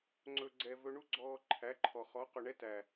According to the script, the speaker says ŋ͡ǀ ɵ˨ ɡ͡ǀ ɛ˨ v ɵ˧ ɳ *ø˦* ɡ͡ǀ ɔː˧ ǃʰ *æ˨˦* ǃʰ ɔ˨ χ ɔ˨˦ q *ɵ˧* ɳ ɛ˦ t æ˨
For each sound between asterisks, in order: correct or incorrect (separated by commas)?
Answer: incorrect, correct, incorrect